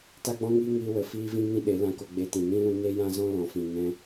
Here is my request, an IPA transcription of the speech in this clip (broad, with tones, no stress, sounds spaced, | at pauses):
t a˦ ɡ͡b ɔ̃˦ ŋ iː˦ ŋ iː˧ w ə˨ f iː˦ v ĩ˦ ŋ ĩ˦ ɗ e˨˦ l ã˧ k o˧ ɡ͡b e˧ t ĩ˨ n ĩ˦ l ũ˧ n e˦ j ã˦ z ɔ̃˦ l ɔ̃˨ f ĩ˨ ŋ ɛ̃˧